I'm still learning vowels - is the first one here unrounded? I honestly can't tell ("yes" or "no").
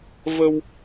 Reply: yes